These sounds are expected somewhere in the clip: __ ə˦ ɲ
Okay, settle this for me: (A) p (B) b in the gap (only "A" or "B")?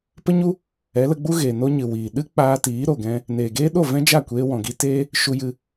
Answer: A